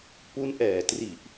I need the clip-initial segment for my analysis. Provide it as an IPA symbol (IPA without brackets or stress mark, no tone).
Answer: p